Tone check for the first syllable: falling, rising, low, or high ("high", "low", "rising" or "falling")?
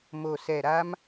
low